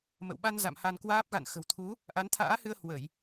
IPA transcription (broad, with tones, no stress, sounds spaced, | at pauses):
m ə̰˧˨ w ɓ a˧ n z a̰˧˨ m h a˧ n k w aː˦˥ p̚ ɣ a̰˧˨ n x ə̤˨˩ w t̪ʰ u˨˦ | ʔ a˨˦ n t̪ʰ a̰ː˧˥ h ɨ˧ ə̯ h w ə˧˩˨ j